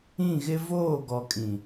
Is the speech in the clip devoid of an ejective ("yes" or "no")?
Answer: no